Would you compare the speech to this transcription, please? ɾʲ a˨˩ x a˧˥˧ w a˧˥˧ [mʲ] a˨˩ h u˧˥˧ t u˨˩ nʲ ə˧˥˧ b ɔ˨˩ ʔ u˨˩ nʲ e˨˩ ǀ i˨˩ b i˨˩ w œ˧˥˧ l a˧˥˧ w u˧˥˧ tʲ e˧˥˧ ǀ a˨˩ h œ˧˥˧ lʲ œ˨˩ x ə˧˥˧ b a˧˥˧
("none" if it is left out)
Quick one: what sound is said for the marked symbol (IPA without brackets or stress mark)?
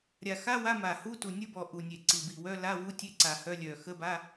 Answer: m